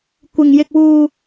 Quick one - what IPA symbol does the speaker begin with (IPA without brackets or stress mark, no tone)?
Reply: kʷ